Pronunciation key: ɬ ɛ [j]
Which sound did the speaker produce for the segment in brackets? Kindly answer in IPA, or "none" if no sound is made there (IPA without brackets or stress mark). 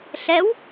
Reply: w